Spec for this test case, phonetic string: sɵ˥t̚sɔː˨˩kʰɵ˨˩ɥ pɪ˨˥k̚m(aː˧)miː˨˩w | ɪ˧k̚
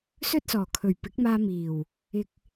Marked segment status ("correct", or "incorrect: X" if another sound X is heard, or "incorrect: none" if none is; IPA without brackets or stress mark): correct